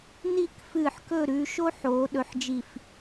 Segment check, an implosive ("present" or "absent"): present